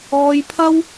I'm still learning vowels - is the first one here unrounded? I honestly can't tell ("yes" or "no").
no